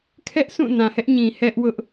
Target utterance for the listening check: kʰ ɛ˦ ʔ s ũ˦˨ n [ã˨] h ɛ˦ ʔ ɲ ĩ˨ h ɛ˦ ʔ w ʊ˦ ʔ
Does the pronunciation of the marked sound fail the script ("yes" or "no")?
no